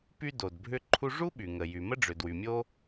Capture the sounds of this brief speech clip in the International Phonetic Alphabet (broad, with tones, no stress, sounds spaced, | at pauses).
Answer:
p y˥ d o˩ d bʱ ʏ˥ ǃʰ u˥ ʐ u˥ ɓ y˩ ŋ ə˩ j y˩ m ə˥ ɖ͡ʐ ʏ˩ d w y˩ mʲ o˥